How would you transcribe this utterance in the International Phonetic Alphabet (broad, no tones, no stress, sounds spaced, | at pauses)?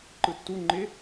ǃ ɯ tː u ŋ͡ǃ ɪ